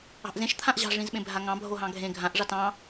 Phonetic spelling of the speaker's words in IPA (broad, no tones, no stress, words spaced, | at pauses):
ɑ̤ʔzẽʃ t̪ʰãʔʑɑ̤ ʐĩzɓẽbʱaŋɑ̃ bʱoɦɑ̃ɡʱẽ ɡʱãʔ ʐɑtɑ̃